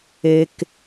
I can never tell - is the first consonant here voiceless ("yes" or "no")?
yes